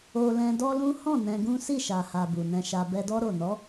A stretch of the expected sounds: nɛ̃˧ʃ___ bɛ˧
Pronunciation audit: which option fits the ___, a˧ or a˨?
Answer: a˧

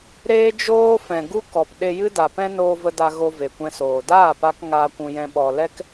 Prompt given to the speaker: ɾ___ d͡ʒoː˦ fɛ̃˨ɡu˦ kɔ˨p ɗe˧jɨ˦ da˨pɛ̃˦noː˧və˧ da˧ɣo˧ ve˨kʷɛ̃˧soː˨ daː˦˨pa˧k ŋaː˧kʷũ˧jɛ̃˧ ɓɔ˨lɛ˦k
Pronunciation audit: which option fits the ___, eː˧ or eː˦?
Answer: eː˦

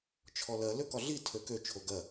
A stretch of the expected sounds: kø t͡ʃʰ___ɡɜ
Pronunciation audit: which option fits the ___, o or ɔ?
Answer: o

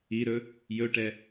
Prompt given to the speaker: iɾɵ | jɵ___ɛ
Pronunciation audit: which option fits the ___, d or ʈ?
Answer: ʈ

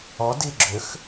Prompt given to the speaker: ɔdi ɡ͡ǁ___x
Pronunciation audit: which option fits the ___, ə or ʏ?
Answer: ʏ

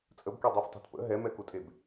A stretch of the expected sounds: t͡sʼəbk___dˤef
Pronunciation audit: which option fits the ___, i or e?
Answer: e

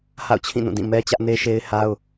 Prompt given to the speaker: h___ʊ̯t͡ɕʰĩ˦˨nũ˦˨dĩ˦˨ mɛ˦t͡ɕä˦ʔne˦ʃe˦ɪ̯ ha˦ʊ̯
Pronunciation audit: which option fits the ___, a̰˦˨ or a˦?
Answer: a̰˦˨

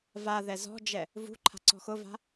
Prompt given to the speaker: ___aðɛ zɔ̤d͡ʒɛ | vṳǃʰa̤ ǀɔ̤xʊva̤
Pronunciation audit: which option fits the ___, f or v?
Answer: v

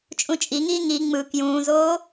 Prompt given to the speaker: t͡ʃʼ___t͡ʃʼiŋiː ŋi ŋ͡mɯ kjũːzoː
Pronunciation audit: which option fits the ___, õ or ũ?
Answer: ũ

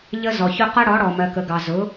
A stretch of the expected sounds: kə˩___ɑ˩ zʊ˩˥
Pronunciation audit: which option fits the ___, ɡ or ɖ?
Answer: ɡ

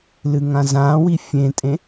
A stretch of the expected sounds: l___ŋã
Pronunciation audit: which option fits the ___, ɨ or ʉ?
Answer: ɨ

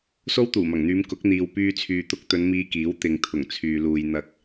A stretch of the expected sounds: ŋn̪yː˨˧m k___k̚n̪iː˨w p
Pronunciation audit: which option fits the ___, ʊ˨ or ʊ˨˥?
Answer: ʊ˨˥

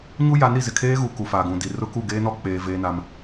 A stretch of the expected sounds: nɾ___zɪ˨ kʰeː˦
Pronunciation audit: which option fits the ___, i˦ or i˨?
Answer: i˨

